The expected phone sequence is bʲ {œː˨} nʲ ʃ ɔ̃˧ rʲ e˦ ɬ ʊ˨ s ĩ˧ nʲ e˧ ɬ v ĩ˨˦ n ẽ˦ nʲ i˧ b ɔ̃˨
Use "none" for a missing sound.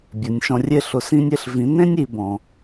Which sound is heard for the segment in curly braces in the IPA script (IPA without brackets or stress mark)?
œ˨